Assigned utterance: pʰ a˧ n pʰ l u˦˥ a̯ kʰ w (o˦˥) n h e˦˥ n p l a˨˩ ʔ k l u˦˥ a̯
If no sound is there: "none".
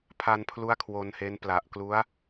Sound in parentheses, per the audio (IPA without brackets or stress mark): o˧